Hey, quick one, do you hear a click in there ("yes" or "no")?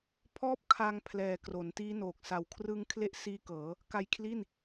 no